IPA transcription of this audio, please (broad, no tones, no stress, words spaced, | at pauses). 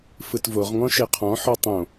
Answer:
fɯtvoʁŋɔ̃ ʃeqʰɔ̃ħɔ tˤõ